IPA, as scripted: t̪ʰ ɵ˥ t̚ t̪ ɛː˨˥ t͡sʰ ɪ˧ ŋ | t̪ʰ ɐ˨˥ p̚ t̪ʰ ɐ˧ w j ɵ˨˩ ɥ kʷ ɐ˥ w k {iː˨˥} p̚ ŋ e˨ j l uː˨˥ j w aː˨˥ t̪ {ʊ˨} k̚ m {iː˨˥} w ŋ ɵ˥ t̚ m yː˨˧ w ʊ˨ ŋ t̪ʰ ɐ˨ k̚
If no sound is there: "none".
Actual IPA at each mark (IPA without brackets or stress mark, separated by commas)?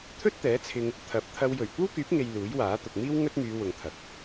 yː˨˥, ʊ˨, iː˥